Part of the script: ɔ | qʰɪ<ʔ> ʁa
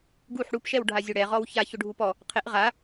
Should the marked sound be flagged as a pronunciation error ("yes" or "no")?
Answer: no